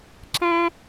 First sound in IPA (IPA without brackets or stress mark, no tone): ǁ